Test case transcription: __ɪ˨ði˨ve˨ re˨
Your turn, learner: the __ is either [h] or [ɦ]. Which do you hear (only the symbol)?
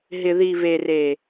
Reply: ɦ